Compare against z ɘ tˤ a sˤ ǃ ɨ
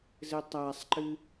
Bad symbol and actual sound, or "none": none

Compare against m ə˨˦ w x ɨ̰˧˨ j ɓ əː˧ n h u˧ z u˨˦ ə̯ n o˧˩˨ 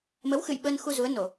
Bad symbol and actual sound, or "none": h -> x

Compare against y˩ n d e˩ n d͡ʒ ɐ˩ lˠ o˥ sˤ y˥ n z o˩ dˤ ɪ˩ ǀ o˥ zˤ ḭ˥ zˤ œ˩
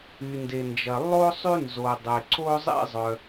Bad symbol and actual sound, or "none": none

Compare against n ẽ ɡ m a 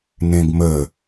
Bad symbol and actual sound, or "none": a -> ə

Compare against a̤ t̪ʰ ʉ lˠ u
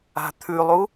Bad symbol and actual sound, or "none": none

